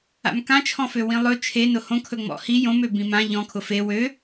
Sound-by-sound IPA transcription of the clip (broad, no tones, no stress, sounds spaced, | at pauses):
a̰ m k ã t͡ʃʰ ɔ̃ f ø w ĩ lˠ ɵ t͡ʃʰ e n ʊ h õ kʰ ɵ ŋ͡m ɔ̰ h i j õ m ø b ĩ m ã ʎ ɔ̃ kʰ ʊ f e w ø